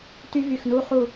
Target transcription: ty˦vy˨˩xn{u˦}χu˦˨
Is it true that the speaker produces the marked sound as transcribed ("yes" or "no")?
yes